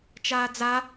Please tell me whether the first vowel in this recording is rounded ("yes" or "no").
no